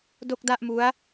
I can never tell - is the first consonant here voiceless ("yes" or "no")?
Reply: no